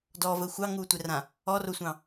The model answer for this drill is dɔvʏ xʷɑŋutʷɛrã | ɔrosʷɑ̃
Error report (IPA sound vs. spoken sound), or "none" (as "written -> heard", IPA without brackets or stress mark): ʏ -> ə